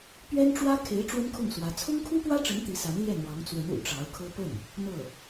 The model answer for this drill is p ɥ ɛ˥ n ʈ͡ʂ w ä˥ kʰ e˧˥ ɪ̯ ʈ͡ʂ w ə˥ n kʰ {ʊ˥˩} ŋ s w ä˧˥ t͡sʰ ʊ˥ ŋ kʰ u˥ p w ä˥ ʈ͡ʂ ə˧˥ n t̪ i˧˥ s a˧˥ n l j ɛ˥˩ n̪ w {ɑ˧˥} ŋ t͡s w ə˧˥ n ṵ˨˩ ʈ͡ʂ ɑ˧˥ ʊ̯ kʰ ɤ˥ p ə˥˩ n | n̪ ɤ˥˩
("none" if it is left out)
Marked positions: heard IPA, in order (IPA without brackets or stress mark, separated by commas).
ʊ˥˩, ɑ˧˥